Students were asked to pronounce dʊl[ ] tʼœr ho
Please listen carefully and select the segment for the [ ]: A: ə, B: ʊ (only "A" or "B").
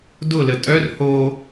A